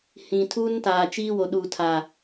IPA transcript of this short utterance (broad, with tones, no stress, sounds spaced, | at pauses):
h ĩ˨ tʰ uː˦ n t aː˨ t͡ʃ iː˦ w o˨ ɗ uː˨ tʰ a˨